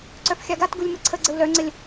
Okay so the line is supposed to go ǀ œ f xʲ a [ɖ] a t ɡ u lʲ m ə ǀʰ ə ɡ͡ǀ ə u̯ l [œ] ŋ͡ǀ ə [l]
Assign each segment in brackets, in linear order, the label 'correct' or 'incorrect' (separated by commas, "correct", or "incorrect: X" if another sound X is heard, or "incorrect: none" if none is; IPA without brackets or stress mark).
incorrect: ɡ, correct, incorrect: lʲ